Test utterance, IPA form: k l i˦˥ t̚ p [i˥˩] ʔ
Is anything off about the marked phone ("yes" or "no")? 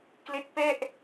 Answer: yes